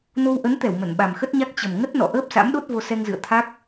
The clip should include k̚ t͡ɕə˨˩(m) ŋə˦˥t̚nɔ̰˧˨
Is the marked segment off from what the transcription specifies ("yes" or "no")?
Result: no